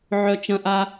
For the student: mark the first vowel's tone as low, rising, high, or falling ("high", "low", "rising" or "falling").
high